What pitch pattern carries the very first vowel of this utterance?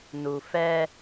low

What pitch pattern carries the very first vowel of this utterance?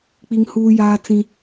high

